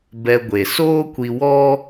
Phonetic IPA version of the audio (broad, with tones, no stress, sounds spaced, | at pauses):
b ɛ˧ ɡʷ e˨ s oː˦ kʷ i˧ w ɔ˦